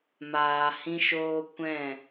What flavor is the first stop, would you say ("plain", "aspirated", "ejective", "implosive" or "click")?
plain